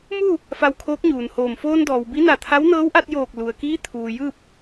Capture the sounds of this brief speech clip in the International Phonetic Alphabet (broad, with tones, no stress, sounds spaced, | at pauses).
m u˥˨ | f a˧ w kʰ oː˧˥ k̚ ɲ uː˩ n h oː˧˩ m f oː˧ n d ɔː˩ w b i˧˥ n a˧˩ t̪ʰ a˧˥ w n ɤː˧˥ w ʔ a˧ t̚ j oː˧˩ k̚ l u˩ ə̯ k iː˧˥ t̪ʰ uː˩ j ɯː˥˨ p̚